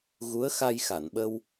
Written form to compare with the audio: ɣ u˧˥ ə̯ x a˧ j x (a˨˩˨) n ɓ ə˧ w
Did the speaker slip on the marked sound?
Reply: no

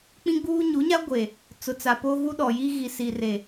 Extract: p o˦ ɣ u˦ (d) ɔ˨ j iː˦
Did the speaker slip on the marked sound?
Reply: yes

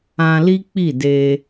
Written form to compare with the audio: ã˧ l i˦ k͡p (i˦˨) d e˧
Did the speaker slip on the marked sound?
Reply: no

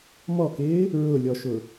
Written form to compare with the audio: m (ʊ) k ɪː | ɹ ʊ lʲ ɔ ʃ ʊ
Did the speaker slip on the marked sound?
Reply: yes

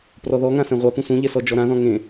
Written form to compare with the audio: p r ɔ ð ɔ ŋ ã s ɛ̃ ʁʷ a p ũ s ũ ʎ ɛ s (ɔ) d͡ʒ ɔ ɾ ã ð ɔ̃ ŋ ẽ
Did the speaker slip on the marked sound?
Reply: no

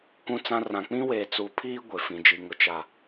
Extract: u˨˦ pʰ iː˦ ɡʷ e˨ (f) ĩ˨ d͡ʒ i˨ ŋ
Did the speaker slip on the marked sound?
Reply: no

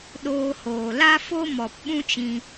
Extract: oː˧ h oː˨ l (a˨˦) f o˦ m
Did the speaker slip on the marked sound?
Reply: yes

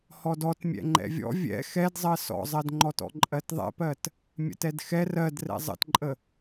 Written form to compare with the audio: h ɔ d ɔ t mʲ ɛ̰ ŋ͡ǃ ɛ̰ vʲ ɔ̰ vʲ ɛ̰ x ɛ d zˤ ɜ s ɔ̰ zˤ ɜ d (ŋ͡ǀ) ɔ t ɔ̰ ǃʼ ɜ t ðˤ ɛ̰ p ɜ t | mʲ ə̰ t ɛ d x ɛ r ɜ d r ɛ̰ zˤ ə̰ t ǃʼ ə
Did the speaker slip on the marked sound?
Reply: yes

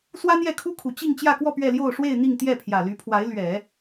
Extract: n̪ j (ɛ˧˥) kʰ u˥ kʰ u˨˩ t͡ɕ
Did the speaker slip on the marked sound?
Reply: yes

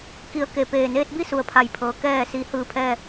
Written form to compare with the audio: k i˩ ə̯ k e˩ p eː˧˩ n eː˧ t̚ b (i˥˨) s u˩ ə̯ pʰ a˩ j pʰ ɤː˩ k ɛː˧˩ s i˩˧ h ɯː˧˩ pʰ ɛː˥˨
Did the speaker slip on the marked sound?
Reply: no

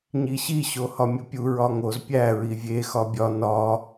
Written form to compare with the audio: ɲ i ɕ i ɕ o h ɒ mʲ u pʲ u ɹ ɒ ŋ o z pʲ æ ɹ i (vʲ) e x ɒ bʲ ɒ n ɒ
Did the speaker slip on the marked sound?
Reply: no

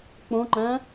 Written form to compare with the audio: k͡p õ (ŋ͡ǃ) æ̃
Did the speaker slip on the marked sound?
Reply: no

